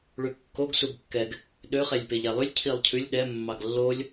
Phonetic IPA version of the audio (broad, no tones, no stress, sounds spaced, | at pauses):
ɭ ʉ kː o ɡ s u ɡ kː ɛ ɡ | ɗ ø χ ɛ lʲ p e ʎ æ lˠ ʉ lʲ cʰ i lˠ cʰ ʉ lʲ ɗ ɛ mː ɑ ɡ lː o lʲ